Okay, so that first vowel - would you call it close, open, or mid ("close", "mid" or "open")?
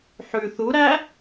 close